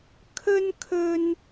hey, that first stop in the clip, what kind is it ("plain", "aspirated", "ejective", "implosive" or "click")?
aspirated